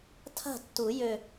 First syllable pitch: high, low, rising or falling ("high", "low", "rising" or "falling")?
falling